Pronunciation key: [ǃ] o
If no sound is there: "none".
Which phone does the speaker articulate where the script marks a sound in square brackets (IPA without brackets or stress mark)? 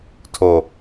tʰ